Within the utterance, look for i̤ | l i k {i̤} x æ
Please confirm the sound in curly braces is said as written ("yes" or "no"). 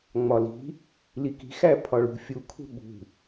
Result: yes